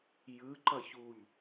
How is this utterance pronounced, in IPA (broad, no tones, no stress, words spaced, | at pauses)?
jɯ ǃʌçuʎ